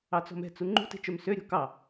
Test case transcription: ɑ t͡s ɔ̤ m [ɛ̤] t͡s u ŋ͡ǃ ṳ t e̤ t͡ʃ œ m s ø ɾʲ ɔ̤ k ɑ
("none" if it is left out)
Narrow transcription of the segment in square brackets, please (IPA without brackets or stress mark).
ɛ̤